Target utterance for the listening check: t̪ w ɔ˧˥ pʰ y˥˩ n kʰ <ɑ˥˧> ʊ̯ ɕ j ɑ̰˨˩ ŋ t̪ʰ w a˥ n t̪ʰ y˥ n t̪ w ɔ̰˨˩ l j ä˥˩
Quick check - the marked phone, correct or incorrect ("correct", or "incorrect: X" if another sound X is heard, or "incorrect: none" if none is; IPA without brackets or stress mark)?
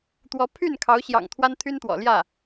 incorrect: ɑ˧˥